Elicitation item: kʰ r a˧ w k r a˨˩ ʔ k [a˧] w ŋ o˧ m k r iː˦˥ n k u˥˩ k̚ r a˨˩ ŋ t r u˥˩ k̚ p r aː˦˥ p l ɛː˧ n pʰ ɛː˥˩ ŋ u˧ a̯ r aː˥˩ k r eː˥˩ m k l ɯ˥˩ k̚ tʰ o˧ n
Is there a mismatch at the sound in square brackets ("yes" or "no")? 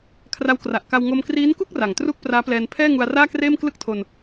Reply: no